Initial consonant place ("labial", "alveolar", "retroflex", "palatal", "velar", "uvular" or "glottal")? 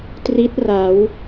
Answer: alveolar